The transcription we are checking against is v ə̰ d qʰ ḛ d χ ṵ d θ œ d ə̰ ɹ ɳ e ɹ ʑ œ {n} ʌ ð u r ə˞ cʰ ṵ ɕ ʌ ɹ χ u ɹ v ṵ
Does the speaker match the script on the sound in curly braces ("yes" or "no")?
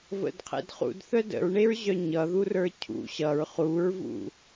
no